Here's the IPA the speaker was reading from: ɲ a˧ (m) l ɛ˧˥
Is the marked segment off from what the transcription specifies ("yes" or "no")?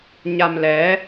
no